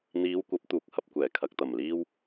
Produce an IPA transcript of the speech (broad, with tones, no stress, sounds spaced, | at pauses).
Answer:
n̪ iː˨˧ w kʷ ɐ˨˥ p̚ t̪ uː˨˥ k̚ h ɐ˨ p̚ kʷ ɛː˨˩ kʰ ɐ˨ k̚ t̪ ɐ˨˩ m l iː˧ w